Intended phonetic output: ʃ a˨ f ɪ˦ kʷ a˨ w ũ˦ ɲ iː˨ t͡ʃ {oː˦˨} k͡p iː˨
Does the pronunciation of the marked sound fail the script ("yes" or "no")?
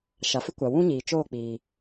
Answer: no